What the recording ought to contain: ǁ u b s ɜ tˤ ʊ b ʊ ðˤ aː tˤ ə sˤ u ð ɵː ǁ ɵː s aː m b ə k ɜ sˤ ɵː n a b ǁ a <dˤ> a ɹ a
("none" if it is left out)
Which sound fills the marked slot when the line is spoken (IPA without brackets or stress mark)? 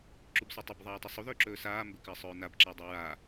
dˤ